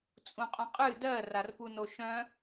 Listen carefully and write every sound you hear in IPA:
t͡sʼũqʼœ̃qʼɨ dɜ rarpunoʃœ̃

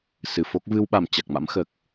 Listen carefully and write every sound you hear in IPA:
sɨ˧˩fo˦˥k̚ vɨ˧wɓa˧˩m t͡ɕa˨˩k̚ma̰˧˥m xəː˨˩k̚

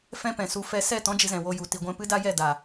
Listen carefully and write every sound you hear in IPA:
fɛ̃˦pɛ̃˨su˧ fɛ˧sɛ˦˨ tɔ̃˦d͡ʒɨ˧zɛ̃˨ wo˧ju˨ ti˨ɡʷɛ̃˧ pɨ˦da˦ jɛ˦˨da˨

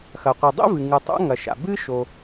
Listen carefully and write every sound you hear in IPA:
xɐ˩qʷi˩dˤḭ˥vɨ˩ ŋɨ˩tˤo̰˥ ŋɐ˩ʃa̰˩ bɨ˥ʃo˩

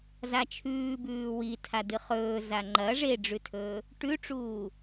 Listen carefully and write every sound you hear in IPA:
zat͡ʃʰʉːbʉː witʰa dɨχɵː zaŋ͡ǃɐ ʐeɖ͡ʐʉtʰɵː | ʈʉʈ͡ʂuː

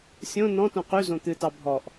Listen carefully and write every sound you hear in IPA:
sʲõ nɔ̃tõ qyzõ t̪ɨtɑ bʱɔʔ

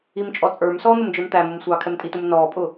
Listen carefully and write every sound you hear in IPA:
imt͡ʃʼɔt͡sʼə˞msɔː n̪ʊmd͡ʒə˞mt̪æmʊm sʷɑːkʰɛmtʼitum nɔːpʼʊ

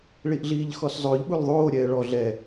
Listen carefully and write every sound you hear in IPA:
ɭiʔɮiːʎxɔszˤɵːʎ ɓulðˤoː ɾʲɛːɭɔ ɮɛ

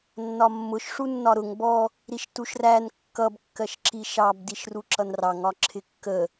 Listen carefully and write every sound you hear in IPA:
nːɒmːʊʃ ʂunːɒɾʊŋ bɔ | ɾiʃtuʃræn kːʌb kːɜʃǁiʃɑb diʃruǁʌnrɑŋ ɒǁʰɪkːə

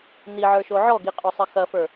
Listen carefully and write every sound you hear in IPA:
niʕə˞ʃo ʕɔɡiqʼosˤɐ xɐfə˞

